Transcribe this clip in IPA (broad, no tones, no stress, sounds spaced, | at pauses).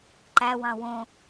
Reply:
ǃ æ w ɑ̃ w õ